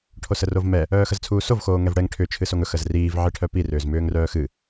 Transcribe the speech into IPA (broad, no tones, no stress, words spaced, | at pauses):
ʈʰosərovmɛ | œːxəzt͡sʰuːsov xoːŋɛvɽɛŋ ʈʰʏ t͡ʃʰɨsoŋɵ xəzriːv ʕiʈʰœpi rʏːzmʏːŋrœːxɨ